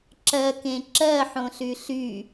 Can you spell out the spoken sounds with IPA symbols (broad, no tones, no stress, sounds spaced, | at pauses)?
ǁ ɜ k ẽ ǁ ɜ ħ õ ɬ y ɬ y